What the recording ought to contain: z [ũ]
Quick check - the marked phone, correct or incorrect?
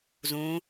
correct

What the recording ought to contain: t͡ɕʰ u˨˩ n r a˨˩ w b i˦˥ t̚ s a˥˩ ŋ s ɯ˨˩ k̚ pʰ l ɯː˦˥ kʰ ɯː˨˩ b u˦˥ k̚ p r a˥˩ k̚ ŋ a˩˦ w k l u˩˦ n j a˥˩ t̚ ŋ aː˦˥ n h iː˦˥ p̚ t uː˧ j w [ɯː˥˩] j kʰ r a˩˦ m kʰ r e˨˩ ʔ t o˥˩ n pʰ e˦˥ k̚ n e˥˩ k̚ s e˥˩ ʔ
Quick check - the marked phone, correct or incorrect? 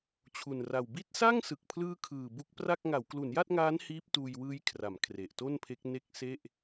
incorrect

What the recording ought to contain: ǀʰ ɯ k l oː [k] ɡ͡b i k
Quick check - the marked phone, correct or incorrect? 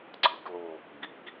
correct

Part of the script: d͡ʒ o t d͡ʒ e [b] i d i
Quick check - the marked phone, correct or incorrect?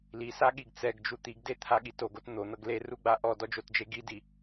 incorrect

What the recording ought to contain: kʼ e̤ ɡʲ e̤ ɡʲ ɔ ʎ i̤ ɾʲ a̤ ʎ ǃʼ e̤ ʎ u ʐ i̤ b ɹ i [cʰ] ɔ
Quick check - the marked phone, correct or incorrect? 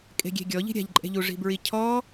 correct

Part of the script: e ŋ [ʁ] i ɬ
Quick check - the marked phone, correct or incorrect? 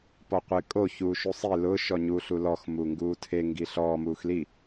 incorrect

